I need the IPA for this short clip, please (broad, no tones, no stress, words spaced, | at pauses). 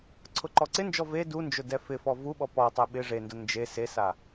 ǀʰʊǃɔǀɪnd͡ʒɔ ve dund͡ʒʊ dɛfɪfɔ vuɓɔ pɔtˤɛ ɓɪ ʐendʊ nd͡ʒe sesa